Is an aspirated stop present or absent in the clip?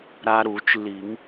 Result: absent